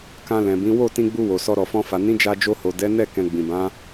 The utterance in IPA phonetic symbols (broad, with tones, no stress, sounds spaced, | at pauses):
k ã˧ l ɛ̃˨ b ĩ˨˦ w o˦˨ t ĩ˧ ɡ͡b u˧ w o˨ s ɔ˧ ɾ ɔ˨ f ɔ̃˧ f a˨ n ĩ˨˦ d͡ʒ a˧ d͡ʒ o˧ h o˨ d ɛ˨˦ n ɛ˦˨ k ɛ̃˧ ɡ͡b ĩ˨ b ã˨˦